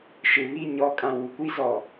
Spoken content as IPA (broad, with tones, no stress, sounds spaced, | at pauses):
ʃ ɪ˨ β i˦˨ ɲ ɔ˨˦ kʼ ã˨ w u˨ kʷ i˦ z ɔ˨